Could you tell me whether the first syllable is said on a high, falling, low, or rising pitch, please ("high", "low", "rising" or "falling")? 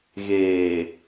low